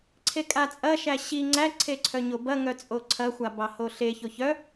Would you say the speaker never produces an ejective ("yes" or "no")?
no